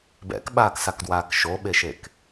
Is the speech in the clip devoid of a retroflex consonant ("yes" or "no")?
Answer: yes